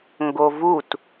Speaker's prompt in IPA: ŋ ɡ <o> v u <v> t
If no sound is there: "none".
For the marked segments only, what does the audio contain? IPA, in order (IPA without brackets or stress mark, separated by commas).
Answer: o, none